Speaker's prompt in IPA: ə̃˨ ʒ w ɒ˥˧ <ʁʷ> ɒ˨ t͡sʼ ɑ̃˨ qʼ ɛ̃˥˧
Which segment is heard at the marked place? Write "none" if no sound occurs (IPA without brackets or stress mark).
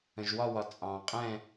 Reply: w